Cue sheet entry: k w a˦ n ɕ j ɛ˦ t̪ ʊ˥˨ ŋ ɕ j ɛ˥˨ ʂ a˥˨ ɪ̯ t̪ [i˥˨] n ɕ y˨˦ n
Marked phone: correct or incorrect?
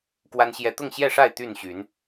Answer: incorrect